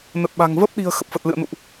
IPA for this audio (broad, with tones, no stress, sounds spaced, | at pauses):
n ə˨˩ t̚ ɓ a̤˨˩ ŋ v ə˦˥ p̚ ɗ i̤˨˩ ə̯ x ə˨˩ p̚ f ə˨˩ t̚ l ɨ̰˧˨ ə̯ n ṵ˧˨ ʔ